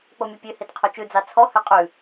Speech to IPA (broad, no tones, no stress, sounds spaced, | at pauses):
k͡p o mʲ ɔ pʲ ø h e t qʰ o t͡ʃ ʉ d͡z ɑ t͡sʰ ɔ h ø qʼ ʉ